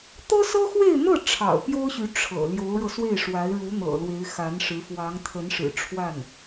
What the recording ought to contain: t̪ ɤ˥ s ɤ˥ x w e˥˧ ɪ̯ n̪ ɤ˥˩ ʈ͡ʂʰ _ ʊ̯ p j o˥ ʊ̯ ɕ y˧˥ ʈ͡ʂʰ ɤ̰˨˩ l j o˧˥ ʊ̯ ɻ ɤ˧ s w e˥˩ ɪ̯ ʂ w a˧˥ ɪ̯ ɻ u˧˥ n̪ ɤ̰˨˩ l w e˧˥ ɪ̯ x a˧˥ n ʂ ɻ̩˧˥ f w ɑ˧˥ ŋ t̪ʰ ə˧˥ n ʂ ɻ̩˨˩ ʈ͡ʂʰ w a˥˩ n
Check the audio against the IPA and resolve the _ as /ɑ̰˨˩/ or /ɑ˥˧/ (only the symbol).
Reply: ɑ̰˨˩